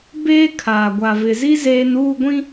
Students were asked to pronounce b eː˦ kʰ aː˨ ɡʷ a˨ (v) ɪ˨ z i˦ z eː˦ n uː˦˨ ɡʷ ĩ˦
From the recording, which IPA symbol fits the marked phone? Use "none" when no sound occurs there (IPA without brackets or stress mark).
v